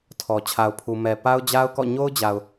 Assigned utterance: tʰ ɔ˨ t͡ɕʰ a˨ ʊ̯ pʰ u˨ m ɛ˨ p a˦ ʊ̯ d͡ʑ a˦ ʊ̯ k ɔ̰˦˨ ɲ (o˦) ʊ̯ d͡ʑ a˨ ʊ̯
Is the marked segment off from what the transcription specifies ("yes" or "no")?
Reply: no